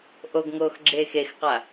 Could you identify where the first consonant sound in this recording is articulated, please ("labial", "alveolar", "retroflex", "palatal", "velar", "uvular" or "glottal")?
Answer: glottal